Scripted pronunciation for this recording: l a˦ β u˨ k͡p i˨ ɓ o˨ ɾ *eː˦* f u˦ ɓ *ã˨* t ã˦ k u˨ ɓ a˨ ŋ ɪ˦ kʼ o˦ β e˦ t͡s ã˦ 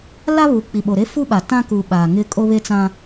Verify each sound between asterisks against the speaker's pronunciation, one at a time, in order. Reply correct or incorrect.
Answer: incorrect: e˦, incorrect: a˨

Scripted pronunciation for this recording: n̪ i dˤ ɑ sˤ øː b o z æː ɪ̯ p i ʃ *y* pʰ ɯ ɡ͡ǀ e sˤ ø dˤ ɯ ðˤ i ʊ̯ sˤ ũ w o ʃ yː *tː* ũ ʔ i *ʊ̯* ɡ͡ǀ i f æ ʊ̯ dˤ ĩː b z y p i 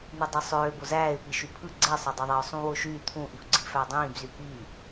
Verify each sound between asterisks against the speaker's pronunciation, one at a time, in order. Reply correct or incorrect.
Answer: correct, incorrect: t̪ʰ, correct

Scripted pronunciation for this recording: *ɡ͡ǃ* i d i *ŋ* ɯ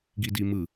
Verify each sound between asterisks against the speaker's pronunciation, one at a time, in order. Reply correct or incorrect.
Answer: incorrect: ɡ, incorrect: m

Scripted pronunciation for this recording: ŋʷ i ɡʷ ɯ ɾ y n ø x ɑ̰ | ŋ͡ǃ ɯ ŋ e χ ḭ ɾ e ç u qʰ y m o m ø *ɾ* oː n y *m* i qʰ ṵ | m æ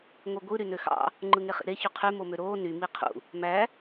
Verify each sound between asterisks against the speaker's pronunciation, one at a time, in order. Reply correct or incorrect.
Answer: correct, correct

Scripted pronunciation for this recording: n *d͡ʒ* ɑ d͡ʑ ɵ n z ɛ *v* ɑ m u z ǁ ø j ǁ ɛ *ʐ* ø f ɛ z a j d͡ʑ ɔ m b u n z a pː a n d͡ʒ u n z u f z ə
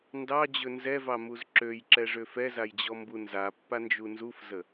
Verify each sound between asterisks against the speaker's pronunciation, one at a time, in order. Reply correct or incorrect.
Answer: incorrect: d, correct, correct

